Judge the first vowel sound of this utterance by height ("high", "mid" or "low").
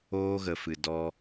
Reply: mid